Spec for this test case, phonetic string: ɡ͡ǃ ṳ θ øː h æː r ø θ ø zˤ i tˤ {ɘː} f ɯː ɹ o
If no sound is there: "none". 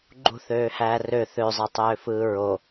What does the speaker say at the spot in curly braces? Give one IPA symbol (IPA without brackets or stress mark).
øː